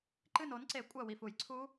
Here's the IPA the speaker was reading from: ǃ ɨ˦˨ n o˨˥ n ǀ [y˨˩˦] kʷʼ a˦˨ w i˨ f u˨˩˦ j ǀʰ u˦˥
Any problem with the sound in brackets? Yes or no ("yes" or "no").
yes